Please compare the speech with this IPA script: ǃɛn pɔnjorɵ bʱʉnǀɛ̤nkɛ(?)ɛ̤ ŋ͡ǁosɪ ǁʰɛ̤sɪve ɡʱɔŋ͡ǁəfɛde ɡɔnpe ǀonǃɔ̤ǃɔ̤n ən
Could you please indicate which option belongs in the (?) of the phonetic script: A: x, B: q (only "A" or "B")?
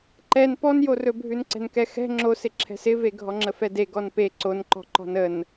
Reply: A